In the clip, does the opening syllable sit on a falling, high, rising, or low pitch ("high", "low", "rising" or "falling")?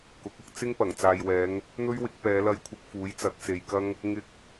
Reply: rising